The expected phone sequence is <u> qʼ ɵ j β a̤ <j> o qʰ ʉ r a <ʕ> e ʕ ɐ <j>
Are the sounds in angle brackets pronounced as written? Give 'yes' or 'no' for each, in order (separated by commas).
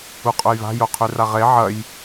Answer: yes, yes, no, yes